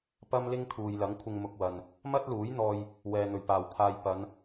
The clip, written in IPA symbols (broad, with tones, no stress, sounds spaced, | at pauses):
p ɐ˥ m l ɪ˥ ŋ t̪ʰ uː˨ j l ɐ˨˥ ŋ kʷʰ ɪ˧ ŋ m ʊ˧ k̚ w ɐ˨ n | m ɐ˥ t̚ l uː˨˥ j n̪ ɔː˧ j | w ɛː˨ n̪ ɵ˨˩ ɥ p aː˨˩ w pʰ aː˧ j p ɐ˨˧ n